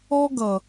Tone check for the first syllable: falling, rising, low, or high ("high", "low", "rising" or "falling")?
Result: high